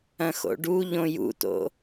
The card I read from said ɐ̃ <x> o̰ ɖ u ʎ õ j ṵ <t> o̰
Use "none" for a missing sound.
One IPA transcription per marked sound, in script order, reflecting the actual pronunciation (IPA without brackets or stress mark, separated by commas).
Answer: x, t